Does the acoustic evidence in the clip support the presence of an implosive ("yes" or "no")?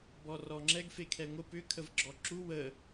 no